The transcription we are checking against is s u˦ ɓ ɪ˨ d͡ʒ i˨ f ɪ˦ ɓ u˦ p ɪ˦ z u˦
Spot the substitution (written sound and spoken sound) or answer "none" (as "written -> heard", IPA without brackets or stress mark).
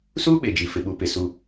z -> s